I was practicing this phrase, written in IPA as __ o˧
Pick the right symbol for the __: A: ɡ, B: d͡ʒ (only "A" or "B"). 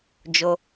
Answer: B